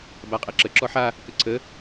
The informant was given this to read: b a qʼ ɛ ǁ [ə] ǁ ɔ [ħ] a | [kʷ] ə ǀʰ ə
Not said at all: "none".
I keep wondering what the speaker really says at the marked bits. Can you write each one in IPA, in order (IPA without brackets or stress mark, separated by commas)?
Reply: ə, ħ, k